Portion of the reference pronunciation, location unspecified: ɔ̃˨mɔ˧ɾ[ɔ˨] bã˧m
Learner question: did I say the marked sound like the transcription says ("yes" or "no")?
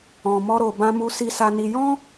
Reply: no